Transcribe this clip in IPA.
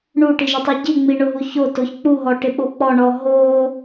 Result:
ɳ u ʈ i ʒ ʊ tˤ i ɟ i ŋ͡m i ɳ ʊ ɦ u ç o t o ç k͡p u ɦ ɔ ʈ ɪ ɓ o k͡p ɔ ɳ ɔ ɦ o

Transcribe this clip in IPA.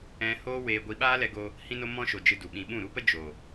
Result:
ɛ̃˦ h oː˦ w eː˧ ɡʷ i˧ ɓ aː˦ l ɛ˧ ɡ o˧ | h ĩ˦ n o˦ m ɔ̃˦ ʃ o˧ d͡ʒ ɨ˧ d u˨ ɓ ĩ˧ ɓ ũ˦˨ ɾ u˦ p ə˦ d͡ʒ o˨

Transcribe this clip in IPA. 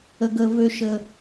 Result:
ə˦ ɡ əː˦ v ø˦ ʃ ə˦

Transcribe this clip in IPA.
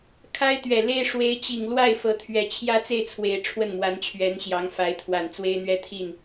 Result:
kʰ a˥ ɪ̯ t̪ ɥ ɛ˨˩ l e˥ ɪ̯ ʂ w e˧˥ ɪ̯ t͡ɕ i˨˩ ŋ l w a˥˩ ɪ̯ f ɤ˧˥ t̪ʰ ɥ ɛ˨˩ t͡ɕʰ j ä˥ t͡s e˥˩ ɪ̯ t͡sʰ w e˨˩ ɪ̯ ʈ͡ʂʰ w ə˥˩ n m w a˧˥ n t͡ɕʰ ɥ ɛ˧˥ n ɕ j ɑ˧˥ ŋ f a˧˥ ɪ̯ t̪ʰ w a˨˩ n t͡s w e˥ ɪ̯ n̪ ɥ ɛ˥ t̪ʰ i˥˩ n

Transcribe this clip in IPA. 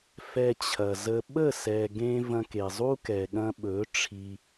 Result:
f ɛ˧ t͡ɕʰ ɐ˨ z ə˧ ɓ ə˦˨ s ɛ˨ ɡ ẽ˧ v ɐ̃˧ k e˨ zˤ u˦ k ɛ˨ ɠ ɐ̃˧ ɓ ɵ˨˦ ʈ͡ʂʰ i˧

